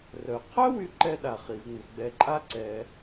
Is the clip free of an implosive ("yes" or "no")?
no